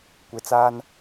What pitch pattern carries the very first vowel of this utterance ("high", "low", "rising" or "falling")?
low